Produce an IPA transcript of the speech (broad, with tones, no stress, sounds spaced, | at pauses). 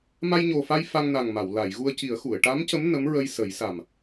m a˧ j ɲ o˨˩ f a˧ j f a˧ ŋ n a˨˩ ŋ m a˨˩˨ w l a˨˩˨ j ɣ u˧ ə̯ c i˨˩˦ ə̯ x u˨˩˨ ə̯ ʈ a˧˥ m c ə˧˥ m n ə˧˥ m ɹ ə˧ j s ə˨˩˦ j s a˨˩ m